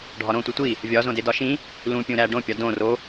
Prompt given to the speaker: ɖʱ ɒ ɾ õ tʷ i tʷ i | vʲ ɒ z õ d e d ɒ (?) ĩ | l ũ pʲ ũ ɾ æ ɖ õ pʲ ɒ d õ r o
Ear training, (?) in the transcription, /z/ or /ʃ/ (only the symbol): ʃ